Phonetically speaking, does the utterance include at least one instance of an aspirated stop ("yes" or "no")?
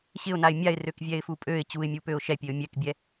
no